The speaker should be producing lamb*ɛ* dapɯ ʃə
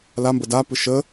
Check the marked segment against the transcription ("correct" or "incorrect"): incorrect